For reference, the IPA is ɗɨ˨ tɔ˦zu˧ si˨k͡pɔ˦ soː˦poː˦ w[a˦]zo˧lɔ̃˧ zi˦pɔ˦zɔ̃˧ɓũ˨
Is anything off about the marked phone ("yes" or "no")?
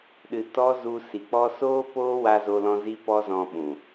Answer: yes